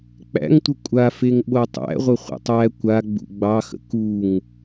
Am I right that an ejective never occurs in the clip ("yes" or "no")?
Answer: no